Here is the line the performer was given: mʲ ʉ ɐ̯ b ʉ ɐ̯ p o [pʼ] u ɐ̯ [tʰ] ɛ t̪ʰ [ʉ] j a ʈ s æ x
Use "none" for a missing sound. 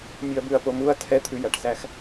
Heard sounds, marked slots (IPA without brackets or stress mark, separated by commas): m, tʰ, ʉ